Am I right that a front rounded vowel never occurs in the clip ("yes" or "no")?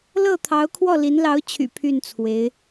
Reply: no